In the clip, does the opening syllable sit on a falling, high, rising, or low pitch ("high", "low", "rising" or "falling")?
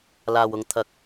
low